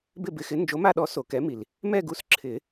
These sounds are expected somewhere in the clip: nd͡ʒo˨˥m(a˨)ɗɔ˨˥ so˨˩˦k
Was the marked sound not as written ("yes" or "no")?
yes